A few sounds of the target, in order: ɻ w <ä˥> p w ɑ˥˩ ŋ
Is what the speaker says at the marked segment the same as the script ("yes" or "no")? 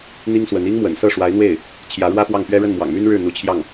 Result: yes